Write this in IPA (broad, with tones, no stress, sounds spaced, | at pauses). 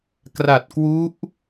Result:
k r a˨˩ t̚ k w u˦˥ ʔ